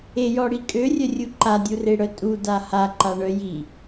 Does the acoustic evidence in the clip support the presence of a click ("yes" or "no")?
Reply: yes